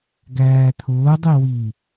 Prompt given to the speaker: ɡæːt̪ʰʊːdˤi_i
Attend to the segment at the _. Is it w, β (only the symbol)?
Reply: w